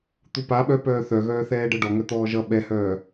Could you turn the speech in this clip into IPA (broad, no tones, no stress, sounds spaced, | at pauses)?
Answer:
t̪ u p a ɓ œ p œː θ œ ɣ œː θ ɛː ɖ ɤ ɖ ɔ ŋ œ t̪ ɔː ʒ ʌ ɓ ɛ h œː